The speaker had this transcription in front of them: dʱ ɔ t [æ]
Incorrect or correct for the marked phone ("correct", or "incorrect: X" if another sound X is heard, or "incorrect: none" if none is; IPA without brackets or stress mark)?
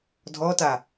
incorrect: a